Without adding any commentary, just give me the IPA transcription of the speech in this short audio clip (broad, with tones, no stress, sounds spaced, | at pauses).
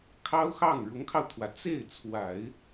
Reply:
kʰ ɑ˥ ʊ̯ x ɑ˥˩ ŋ ɻ ʊ˧˥ ŋ kʰ ɑ˧ ʊ̯ t̪ʰ w ä˩ t͡s e˥˩ ɪ̯ t͡sʰ w a˨˩˦ ɪ̯